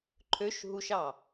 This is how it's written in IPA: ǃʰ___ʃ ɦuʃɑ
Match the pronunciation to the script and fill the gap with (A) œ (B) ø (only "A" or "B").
B